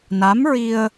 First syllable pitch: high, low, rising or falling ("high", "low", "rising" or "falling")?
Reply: rising